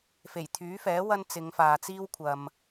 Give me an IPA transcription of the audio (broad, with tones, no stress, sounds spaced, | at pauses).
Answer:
f e˨˩ j t̪ʰ yː˨˥ f ɛː˨˥ w ɐ˥ n t͡s ɪ˨˧ ŋ f aː˨ t͡s iː˥ w kʷʰ ɐ˨ m